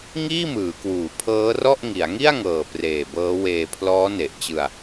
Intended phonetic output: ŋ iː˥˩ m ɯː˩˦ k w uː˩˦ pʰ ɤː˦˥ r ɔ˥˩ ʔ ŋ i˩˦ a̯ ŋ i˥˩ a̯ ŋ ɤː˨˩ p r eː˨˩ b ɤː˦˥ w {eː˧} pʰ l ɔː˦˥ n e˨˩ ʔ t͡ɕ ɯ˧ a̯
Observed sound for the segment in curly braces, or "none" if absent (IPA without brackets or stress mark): eː˧